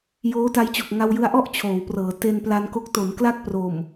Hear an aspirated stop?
yes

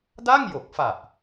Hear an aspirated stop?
no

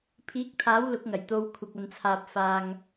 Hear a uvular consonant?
no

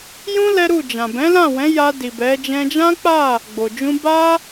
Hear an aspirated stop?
no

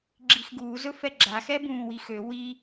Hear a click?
yes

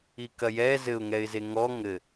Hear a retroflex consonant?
no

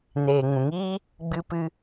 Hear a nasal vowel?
yes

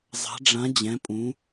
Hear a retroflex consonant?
yes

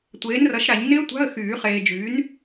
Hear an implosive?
no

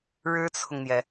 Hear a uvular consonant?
no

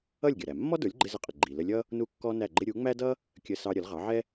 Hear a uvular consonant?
yes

